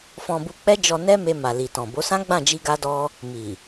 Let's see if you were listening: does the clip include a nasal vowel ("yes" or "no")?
yes